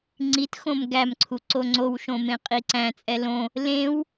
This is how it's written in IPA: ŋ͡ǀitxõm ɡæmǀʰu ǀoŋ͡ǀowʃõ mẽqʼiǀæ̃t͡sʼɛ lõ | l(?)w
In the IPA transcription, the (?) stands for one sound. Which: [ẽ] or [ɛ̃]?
ẽ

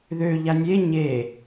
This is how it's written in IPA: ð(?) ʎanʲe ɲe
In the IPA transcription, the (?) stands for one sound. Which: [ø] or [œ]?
ø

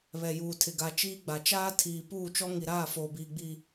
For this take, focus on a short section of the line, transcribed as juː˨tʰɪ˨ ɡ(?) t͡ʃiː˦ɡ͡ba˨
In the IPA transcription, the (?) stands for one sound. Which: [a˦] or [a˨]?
a˨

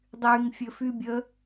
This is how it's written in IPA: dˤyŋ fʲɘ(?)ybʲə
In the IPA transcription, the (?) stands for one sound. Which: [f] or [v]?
f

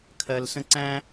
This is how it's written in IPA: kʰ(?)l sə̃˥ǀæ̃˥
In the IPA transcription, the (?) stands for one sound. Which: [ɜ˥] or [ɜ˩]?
ɜ˥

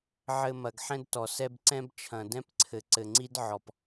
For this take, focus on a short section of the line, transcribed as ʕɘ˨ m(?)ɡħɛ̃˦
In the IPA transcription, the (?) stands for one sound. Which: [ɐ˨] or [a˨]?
ɐ˨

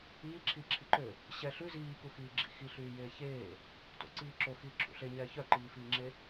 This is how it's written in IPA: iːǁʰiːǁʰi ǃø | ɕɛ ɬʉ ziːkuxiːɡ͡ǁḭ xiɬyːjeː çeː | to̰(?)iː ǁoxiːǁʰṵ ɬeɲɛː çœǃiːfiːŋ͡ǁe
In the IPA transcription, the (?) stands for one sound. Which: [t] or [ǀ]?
ǀ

